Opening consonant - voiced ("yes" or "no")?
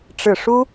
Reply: no